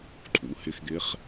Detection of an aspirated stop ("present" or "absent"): present